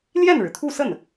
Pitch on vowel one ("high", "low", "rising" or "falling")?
falling